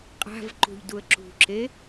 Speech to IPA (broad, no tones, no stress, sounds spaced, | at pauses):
qʼ a̤ v ǃ ṳ ʎ d u ə̯ ǁ ṳ ǁ e